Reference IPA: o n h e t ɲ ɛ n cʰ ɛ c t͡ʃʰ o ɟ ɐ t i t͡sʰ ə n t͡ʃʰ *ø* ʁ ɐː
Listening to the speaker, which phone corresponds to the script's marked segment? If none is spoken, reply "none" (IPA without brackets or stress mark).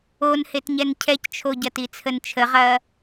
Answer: ə